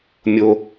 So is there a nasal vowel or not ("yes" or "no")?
no